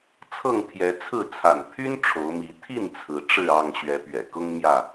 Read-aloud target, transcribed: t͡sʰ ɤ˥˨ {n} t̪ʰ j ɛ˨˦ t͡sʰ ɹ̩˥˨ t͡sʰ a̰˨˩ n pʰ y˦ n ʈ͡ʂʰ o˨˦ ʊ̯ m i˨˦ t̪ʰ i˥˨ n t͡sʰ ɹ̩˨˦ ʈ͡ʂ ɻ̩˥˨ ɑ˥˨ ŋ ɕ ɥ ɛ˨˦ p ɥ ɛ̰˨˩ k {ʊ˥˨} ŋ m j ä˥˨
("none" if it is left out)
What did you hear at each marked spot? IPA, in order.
ŋ, ʊ˦

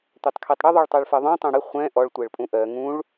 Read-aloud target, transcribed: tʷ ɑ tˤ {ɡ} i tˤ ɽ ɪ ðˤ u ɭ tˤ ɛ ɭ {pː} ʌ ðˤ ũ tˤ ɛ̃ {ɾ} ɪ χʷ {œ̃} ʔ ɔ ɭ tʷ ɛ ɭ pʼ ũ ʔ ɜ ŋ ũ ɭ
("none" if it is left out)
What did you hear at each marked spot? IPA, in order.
kʰ, f, ɽ, ɛ̃

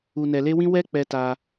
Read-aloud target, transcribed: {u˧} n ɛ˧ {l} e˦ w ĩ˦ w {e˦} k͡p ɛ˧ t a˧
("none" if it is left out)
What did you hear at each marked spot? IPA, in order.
u˧, l, ɛ˦

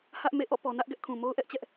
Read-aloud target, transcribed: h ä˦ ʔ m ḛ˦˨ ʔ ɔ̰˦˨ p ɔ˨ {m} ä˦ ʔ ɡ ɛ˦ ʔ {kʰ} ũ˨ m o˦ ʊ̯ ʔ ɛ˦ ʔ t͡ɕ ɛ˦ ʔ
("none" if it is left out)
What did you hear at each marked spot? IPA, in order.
n, kʰ

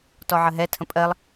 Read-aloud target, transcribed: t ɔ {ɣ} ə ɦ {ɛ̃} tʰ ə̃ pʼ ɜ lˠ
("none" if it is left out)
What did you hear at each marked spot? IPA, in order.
ʕ, ɛ

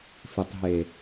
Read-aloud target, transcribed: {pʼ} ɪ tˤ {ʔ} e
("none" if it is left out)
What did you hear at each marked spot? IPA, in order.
f, ɦ

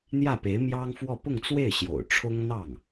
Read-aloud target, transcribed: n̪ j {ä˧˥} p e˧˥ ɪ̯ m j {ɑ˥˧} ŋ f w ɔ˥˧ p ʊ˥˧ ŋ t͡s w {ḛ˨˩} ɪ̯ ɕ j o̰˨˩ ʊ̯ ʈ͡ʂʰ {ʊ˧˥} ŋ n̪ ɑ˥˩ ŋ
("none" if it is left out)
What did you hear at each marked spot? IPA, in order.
ä˥˩, ɑ˥, e˥˩, ʊ˥

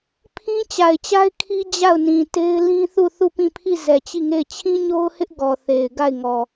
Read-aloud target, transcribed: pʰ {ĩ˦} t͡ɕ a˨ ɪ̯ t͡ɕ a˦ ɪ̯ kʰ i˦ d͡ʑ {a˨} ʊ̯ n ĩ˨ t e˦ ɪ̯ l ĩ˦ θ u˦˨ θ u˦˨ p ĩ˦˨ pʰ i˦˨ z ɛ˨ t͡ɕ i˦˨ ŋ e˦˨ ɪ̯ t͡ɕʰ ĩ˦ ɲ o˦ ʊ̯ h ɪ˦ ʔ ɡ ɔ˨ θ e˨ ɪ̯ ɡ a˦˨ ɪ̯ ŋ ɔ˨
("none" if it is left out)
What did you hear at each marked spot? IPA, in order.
ĩ˦, a˦˨

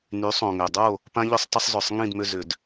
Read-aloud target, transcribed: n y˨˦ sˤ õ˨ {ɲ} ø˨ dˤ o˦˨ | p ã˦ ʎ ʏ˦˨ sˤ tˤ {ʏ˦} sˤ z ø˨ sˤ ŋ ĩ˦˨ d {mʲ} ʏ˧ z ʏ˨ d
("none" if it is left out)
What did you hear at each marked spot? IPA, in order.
ŋ, ʏ˦, m

